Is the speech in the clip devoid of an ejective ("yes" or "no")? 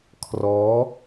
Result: yes